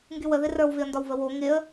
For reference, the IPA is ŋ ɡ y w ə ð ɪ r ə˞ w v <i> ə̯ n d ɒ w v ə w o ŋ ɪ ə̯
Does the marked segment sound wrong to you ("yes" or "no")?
yes